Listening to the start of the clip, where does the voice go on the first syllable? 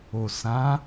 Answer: low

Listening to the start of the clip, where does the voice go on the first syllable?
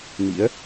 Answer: rising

